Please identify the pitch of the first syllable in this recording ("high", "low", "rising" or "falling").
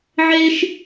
high